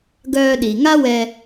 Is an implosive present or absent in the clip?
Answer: present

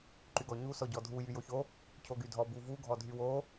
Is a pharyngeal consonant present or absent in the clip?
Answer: absent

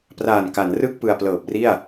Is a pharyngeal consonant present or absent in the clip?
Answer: absent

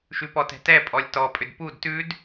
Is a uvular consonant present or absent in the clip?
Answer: absent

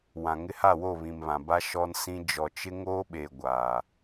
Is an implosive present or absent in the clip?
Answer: present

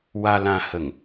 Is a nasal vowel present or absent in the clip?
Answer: present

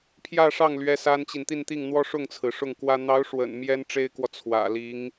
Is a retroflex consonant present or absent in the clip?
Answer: present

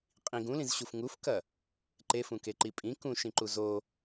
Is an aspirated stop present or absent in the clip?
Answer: absent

